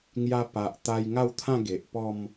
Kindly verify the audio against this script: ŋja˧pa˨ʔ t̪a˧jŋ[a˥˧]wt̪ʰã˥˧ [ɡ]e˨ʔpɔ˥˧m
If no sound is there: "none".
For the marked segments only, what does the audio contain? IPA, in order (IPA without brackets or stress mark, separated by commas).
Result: a˥˧, ɡ